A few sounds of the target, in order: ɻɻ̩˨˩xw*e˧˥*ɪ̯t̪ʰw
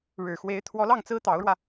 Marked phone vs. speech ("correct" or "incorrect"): correct